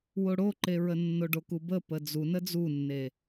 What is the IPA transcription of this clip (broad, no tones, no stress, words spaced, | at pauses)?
woɽoǃeɹə nːoɖokubə pəd͡zunə d͡zunːe